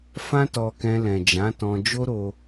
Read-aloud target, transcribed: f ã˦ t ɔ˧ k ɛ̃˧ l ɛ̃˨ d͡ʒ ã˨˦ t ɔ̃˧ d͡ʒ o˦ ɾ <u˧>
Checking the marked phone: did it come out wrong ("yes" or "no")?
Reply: yes